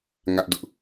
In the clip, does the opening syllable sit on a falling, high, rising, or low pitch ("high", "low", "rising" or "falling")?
high